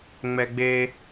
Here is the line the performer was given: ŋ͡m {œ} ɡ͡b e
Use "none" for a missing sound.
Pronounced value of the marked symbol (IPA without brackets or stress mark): ɛ